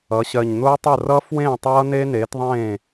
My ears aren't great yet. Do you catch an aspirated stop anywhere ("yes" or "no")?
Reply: no